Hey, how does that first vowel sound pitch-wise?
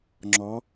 rising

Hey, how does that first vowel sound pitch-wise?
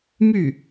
falling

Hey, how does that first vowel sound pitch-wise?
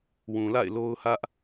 low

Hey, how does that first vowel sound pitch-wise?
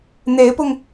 rising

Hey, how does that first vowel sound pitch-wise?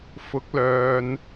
rising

